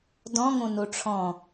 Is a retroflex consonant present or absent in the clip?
present